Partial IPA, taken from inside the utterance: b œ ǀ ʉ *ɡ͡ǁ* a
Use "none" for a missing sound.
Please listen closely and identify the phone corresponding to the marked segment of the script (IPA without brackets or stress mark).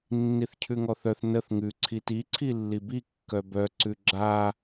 ɡ͡ǁ